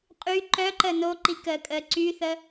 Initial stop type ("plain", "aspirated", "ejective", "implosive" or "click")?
ejective